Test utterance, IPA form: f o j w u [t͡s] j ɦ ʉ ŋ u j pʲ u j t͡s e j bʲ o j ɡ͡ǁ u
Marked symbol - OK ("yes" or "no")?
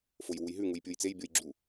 no